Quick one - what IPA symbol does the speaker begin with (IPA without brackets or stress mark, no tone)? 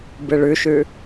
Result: b